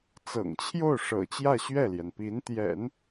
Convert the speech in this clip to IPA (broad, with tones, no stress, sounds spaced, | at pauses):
t͡s ɤ̰˨˩ ŋ t͡ɕʰ j o˥˩ ʊ̯ ʂ ɤ̰˨˩ t͡ɕ j ä˥˧ ɕ ɥ ɛ˥˩ l j ɛ˩ n p i˧˥ n t̪ j ɛ̰˨˩˦ n